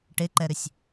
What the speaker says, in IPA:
ʈ e ǃ ɛ ɾ ʏ sʲ

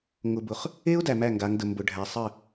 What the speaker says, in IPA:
ŋ ʊ˨ b ʊ˨ χ | e˦ ʊ̯ d æ˨ m æ˦˨ ŋ ɡ a˨˦ ŋ d ə˨ m b ʊ˨ ɖʱ æ˨ sˤ ə˦˨

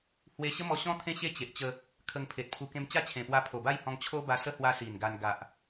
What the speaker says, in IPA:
h w e˧ ɕ ə˦ m ɔ˧ ɕ ɔ̃˦ t̪ʰ ẽ˦ ɕ e˦ t͡ɕ e˨ ʔ t͡ɕ ə˧ | kʰ ə˧ ŋ pʰ e˨ t̚ pʰ u˧ k ẽ˧ m t͡ɕ a˦ t͡ɕʰ ẽ˨˩ p w a˧ pʰ o˨˩ b a˥˧ j h ɔ̃˧ ŋ t͡ɕʰ o˦ b a˧ s ə˦ h w a˧ s i˨˩ n ɡ a˧ n ɡ a˨ ʔ

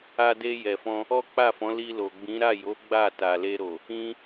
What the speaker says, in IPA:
a˧ d e˧ j ɛ˨ f ɔ̃˧ | ɔ˦ k͡p a˦˨ f ɔ̃˨˦ l i˧ l o˨ ɡ͡b ĩ˨˦ ɾ a˦˨ j o˨˦ ɡ͡b a˦˨ t a˨ l e˧ ɾ o˨ | ĩ˦

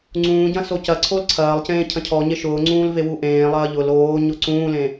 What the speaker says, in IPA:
ŋ͡ǀ ũː ɟ ɐ̃ s o c ɐ ǀʰ o l ǀʰ ɐː lˠ c ẽː cʰ ɐ̃ cʰ ɔ ɲ e ʃ ʊː ŋ͡ǀ ũː l v e w u ʔ ẽː lˠ ɐː ʎ ʊ l oː ɲ ʊ ǀ ũː l ẽ

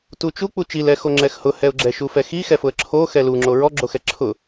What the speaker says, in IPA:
t u t͡ʃ u k͡p u t͡ʃ i l ɛ x o ŋ͡ǁ ɛ x h ʊ h ɛ ʊ̯ ɡ͡ǁ ɛ ʃ u f ɛ x i x ɛ f ʊ ə̯ ǁʰ o x ɛ l u ŋ͡ǁ o ɹ ɔ ɡ͡ǁ o x ɛ ǁʰ ʊ

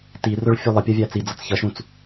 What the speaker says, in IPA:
t i r ʊ ɭ fʲ u lˠ ə pʲ ɜ vʲ æ t͡s i d͡z ʌ t͡s ç ʌ ʃ ũ t͡s

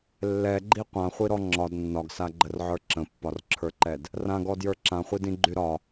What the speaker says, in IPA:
lː ɛ ɡ͡ǃ i qʷ ã χʷ i ɾ ɔ ŋ͡ǁ ɒ d nː ɒ ɡ s a ɡ͡ǃ ə r ʕ ə˞ ǁ ə̃ pː ɒ r ǁʰ ə˞ ǃ ɛ d | r ã ɡ ɔ d j ə˞ ǁ ã χʷ i d ĩ ɡ͡ǃ y ɾ ɒ

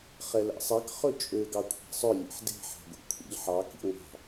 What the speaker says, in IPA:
χ ɛ l æ̰ sˤ ɛ k χ ɵ t͡ʃʼ ø ɡ ɑ kʷʰ æ̤ sˤ œ lʲ ḛ ħ d e̤ ħ æ̤ ɡʷ ḛ kʷʰ ḭ ʎ ħ ɑ k ḭ ŋʷ ɑ̤

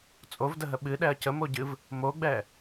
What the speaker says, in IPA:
t͡sʼ o v d ə ɦ ə ɓ ɨ ɗ ɛ ɐ̯ c ə m o ɟ ɨ v | m o ɡ͡b ɛ

